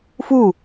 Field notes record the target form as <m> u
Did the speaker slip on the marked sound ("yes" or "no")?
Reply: yes